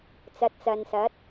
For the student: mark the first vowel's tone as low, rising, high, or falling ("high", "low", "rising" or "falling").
rising